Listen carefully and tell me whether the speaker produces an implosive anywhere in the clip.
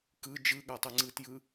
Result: yes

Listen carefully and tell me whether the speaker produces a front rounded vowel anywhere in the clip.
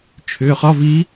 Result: yes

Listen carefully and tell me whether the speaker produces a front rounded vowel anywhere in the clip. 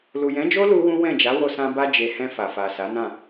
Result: no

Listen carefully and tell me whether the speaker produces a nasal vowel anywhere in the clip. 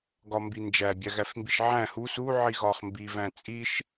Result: yes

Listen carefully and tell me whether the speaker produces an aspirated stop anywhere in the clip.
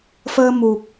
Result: no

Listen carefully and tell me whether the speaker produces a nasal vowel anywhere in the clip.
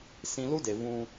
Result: yes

